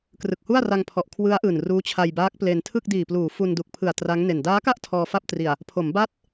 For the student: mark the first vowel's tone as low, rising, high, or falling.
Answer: low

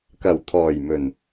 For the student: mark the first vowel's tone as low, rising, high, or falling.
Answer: low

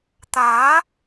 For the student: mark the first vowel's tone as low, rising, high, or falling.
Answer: rising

